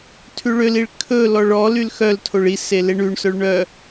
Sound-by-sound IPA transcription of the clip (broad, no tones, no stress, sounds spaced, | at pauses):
tʰ ʉ ɭ ø l i ɭ kʰ ɵ l ɔ ɭ ɔ l y l x œ l tʰ o ɭ i s e l e ɳ ʉ ɳ s œ ɭ ɳ œ